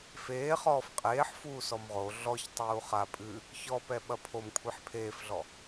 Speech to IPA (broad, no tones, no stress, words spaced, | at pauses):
feːχɔːf qʼeːħ fuːsɔmʁo ɮɔç tˤuːχa pʼɨ | çɔpɛ ɓɐpʰom kʷʰeħpʰeːfɮɔ